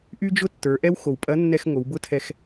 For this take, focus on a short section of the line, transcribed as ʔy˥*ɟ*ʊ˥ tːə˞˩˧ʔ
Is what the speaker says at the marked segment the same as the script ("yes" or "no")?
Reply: no